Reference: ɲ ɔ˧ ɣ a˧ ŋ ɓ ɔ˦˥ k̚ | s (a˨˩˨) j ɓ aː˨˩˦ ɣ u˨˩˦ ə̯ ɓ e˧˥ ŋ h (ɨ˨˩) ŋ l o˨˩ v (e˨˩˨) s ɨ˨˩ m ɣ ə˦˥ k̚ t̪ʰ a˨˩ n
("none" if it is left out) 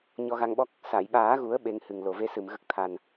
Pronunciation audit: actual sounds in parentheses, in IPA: a˨˩˨, ɨ˨˩, e˧˥

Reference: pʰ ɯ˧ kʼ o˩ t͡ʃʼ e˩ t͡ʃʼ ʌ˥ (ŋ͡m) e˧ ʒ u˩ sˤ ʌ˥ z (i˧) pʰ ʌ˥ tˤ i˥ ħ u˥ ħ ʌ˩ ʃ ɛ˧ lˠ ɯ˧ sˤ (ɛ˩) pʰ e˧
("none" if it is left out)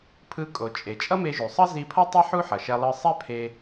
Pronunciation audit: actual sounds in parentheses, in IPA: m, i˧, ɛ˥

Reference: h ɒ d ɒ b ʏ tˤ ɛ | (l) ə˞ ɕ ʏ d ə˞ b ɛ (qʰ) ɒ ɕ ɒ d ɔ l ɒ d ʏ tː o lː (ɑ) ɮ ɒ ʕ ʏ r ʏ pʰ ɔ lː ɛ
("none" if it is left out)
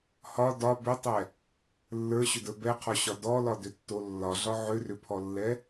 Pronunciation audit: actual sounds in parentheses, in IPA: lː, qʰ, ɒ

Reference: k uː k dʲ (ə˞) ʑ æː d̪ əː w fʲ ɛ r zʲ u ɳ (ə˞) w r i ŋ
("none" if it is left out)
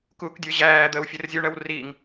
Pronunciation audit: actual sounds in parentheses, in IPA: ə˞, ɜ

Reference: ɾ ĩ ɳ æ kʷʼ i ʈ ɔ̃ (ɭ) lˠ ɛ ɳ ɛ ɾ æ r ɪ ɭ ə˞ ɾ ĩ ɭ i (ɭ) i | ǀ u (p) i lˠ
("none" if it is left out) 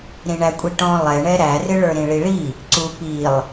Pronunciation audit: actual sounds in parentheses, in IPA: none, ɭ, p

